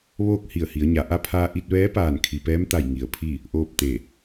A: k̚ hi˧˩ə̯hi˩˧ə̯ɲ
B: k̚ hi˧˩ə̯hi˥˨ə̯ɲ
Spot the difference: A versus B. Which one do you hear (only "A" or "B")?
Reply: A